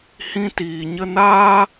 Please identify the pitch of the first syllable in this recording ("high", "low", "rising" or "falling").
high